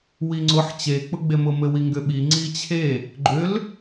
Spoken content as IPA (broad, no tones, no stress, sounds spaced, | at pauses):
w i ŋ͡ǀ ʊ ħ t͡ɕ e k͡p ʊ ɡ͡b e m ʊ m ɘ w i ŋ ɡ ʏ ɓ i ŋ͡ǀ i t͡ɕʰ e | ɡ͡ǃ ʏ l